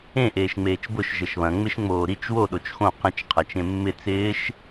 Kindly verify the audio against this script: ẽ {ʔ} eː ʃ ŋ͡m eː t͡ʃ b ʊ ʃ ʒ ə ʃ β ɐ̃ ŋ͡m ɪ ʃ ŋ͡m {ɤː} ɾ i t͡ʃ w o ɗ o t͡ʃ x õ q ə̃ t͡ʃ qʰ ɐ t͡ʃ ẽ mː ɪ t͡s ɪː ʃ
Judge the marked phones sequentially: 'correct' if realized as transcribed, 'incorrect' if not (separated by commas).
correct, incorrect